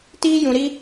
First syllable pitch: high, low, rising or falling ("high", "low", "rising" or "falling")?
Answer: high